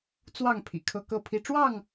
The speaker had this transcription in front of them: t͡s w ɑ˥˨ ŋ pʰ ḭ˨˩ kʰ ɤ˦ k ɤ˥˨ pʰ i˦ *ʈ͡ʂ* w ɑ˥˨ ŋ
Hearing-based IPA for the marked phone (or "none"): ʈ͡ʂ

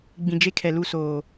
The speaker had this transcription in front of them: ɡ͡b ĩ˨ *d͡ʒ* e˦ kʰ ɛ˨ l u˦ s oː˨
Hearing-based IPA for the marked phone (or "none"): d͡ʒ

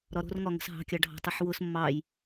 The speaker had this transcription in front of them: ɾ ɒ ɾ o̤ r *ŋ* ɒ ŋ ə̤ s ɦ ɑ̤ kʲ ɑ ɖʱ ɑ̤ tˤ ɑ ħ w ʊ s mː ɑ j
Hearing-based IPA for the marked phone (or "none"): ŋ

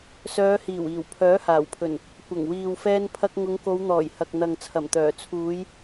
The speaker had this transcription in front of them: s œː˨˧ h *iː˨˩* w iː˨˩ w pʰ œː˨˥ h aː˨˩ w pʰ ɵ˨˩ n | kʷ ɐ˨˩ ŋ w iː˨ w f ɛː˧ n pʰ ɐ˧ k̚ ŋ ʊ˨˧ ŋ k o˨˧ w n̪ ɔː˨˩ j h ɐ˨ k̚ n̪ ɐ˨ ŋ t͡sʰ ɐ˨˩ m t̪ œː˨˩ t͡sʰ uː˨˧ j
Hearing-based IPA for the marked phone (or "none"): iː˨˩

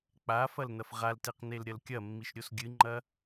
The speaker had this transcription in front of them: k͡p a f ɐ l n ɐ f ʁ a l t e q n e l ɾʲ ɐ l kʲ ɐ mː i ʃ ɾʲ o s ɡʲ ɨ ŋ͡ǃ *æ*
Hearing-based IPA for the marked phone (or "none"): ɐ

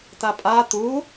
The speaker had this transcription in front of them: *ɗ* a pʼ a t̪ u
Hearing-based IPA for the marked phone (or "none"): t̪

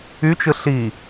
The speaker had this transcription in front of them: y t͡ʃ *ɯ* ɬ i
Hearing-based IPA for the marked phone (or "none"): ɯ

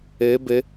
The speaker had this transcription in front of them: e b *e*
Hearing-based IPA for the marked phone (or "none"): e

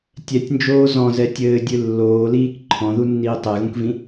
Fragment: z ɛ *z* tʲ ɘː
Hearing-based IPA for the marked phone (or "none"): none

